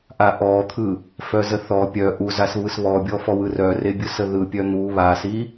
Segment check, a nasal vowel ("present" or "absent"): absent